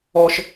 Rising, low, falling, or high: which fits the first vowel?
high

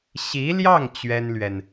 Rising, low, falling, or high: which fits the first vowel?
rising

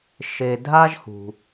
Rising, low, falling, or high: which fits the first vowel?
low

